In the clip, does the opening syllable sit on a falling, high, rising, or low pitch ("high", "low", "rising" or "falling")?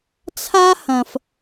high